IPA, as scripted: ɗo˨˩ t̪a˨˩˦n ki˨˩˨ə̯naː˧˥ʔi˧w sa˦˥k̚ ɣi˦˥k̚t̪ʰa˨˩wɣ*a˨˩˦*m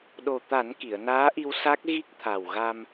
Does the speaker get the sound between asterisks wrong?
yes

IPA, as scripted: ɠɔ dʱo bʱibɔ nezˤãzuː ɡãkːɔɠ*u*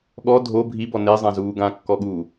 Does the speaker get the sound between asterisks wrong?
yes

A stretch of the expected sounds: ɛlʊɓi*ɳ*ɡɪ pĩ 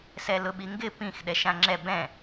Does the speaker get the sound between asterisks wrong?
yes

